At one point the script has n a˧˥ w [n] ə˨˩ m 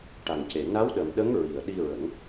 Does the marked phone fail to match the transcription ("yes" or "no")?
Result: yes